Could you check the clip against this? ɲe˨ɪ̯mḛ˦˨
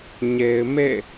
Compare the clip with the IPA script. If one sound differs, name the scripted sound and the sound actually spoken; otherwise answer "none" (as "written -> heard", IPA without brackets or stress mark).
none